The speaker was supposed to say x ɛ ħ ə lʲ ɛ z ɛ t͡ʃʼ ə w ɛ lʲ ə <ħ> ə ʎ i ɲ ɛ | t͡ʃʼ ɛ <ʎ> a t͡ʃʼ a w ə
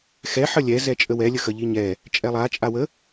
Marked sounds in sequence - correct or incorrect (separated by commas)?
incorrect, incorrect